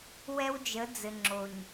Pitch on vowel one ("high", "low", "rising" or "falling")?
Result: high